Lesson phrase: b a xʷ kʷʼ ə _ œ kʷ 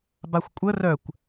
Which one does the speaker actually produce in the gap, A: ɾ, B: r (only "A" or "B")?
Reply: B